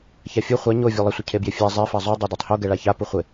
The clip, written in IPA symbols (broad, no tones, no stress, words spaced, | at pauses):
çafʲo χʷa ɲo vʲolˠɪsʷə cʰebjɪfʲa zˤefa zˤo dˤɛdatˤho ɡɛɭaça puχʷɪ